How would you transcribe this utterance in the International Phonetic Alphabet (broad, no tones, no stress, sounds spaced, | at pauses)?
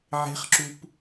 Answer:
ʕ e̤ χ ǁ u p